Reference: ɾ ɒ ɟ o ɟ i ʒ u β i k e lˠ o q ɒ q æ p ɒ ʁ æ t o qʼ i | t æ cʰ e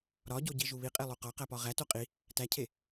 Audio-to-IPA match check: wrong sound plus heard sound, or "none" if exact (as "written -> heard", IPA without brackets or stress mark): k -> qʼ